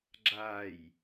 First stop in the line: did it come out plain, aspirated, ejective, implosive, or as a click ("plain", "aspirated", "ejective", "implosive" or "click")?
click